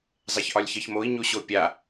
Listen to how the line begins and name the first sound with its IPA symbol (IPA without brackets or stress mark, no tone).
zˤ